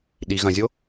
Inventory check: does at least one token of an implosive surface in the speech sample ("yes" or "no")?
yes